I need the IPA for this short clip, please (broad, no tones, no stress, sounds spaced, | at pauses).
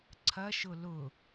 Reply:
ǀʰ ɐ ʃ ʊ l ʊ